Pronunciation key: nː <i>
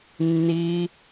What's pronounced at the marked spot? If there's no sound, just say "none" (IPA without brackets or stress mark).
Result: i